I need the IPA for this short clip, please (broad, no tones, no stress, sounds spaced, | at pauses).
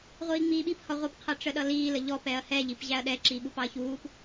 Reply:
ʁʷ iː ŋ͡m iː ɓ i p h ɒ ʁʷ ɪ p qʰ ʌ ʈ͡ʂ ə ɗ ʌ l iː l ə ʎ ɔ p ɛ ɐ̯ h ɛ ʎ i p ʑ æ ɐ̯ ɗ ɛ ǁ i ɓ u p ɑ ɐ̯ ç uː p